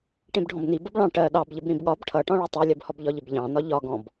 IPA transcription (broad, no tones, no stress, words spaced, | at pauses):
ʈĩbɖʱɔ̃bni bʌbɭɑ̃ ʈɜ ɗɑbʎɪb ɾĩbɠɒb ʈʰʌʈɔ̃ɭɜ tˤɜlʲɜbhɔb ʎɒʎɪbʎɑ̃nɒ ʎɒɡɔ̃b